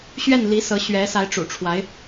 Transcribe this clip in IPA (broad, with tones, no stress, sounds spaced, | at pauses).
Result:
ɕ ɥ ɛ˥˩ n l i˧˥ s ɤ˧˥ ɕ ɥ ɛ˧˥ s a˧˥ ɪ̯ ʈ͡ʂ ṵ˨˩ ʈ͡ʂʰ w a˧˥ ɪ̯